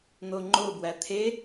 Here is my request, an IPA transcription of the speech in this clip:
n̪ o ŋ͡ǃ o b w æ t̪ʰ e

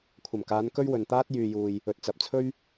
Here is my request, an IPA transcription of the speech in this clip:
kʷʰ ɐ˨˩ m k aː˨˧ n k ɵ˥ ɥ w ɵ˨ n t̪ aː˥ t̚ j yː˨ j uː˨ j | ɵ˨ t̚ t͡s ɐ˨ p̚ t͡sʰ ɵ˥ ɥ

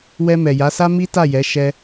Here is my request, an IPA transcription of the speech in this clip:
w ɛ˧ m ɛ˨ j a˨˦ s a˦ m i˦ t a˦˨ j ɛ˨˦ ʃ ɛ˧

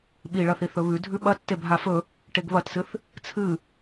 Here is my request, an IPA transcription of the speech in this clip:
ɓ i ɭ ɐ θ i θ ɵ β ʉ dʱ ʉ ɓ ɐ tː e bʱ a f ɵ | ʈ e ɡ β ɐ t s ɨ θ | t͡sʰ ɨ

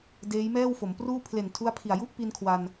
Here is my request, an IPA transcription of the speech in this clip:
d eː˦˥ j m ɛː˥˩ w f o˩˦ m p r uː˥˩ pʰ l e˨˩ n tʰ u˦˥ a̯ pʰ i˨˩ a̯ j u˥˩ ʔ p i˧ n kʰ w a˧ n

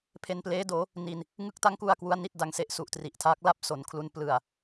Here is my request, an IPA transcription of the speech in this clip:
pʰ e˧ n p l eː˦˥ d oː˩˦ | n i˧ n | ŋ ɯ˦˥ k̚ t a˦˥ ŋ k u˧ a̯ k w u˦˥ a̯ n i˥˩ t̚ d a˧ ŋ s e˦˥ ʔ s u˨˩ ʔ t r i˨˩ ʔ tʰ aː˦˥ k̚ l a˥˩ p̚ s o˩˦ n kʰ l u˧ n p l ɯ˨˩ a̯

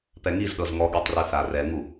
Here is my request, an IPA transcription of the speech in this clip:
p ɛ ŋ i z ɗ ɤ z ŋ ɔ ɠ i tˤ r ɯ θ a r ɛ ŋ u

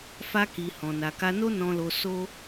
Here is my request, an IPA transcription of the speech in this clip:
f a˧ k i˨ h ɔ̃˨ n a˨ k a˧ n o˦ n ɔ̃˧ l o˧ s o˦

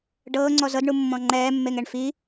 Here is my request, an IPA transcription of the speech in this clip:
ɖ ɤː ŋ͡ǀ ɔ z ɤ d ɳ u mː ɔ̃ ŋ͡ǃ ɛː mː e ŋ ɛ ɳ f i

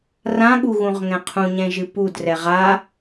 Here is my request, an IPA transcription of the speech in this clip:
r ã ɠ u ɣ ũ ʁ ŋ ɛ̃ qʰ ũ ɲ ɛ̃ ʒ ɨ p u d r ɛ ʁ a

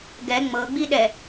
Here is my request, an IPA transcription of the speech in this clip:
ɡ ɛ ŋ͡m ɤ ɡ͡b i ɗ ɛ

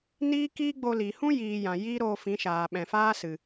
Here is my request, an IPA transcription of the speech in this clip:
n iː˦ k iː˦ ɡ͡b o˧ l i˨ h ũ˦ j iː˨ j ã˨ j iː˦ ɾ oː˧ f ĩ˨˦ ʃ aː˨ ɓ ɛ̃˨ f aː˦ s ɨ˨

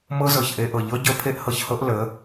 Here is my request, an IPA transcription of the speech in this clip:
m ɤ˦ z ɤ˨ ç ʔ e˧ ʔ ɤ˨ ʎ ɤ˦ ɟ ə˦ pʰ e˦ ʔ h ɤ˧ ç h ɤ˦ ʔ l ə˨˦

